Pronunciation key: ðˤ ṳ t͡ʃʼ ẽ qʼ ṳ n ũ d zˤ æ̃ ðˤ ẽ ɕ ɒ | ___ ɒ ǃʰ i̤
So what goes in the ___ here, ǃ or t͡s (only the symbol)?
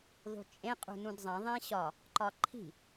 ǃ